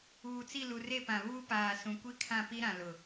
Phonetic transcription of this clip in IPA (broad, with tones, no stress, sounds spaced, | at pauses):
uː˨ t͡s i˦˨ l u˨ r e˦˨ p ã˨ β uː˦ p aː˨ s ũ˨ kʷ i˦ kʰ ã˦˨ p i˦ ɾ ã˨ l ʊ˨